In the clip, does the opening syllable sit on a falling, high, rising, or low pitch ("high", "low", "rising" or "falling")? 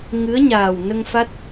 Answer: rising